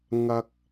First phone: ŋ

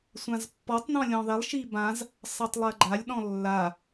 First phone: sʷ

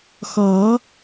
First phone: x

